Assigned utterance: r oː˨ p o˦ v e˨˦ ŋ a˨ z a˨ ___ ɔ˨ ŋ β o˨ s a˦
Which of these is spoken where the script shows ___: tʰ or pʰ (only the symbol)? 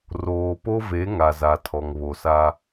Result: tʰ